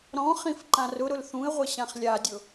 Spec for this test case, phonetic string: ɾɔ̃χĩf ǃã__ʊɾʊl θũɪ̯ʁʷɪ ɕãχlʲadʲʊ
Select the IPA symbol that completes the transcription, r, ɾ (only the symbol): r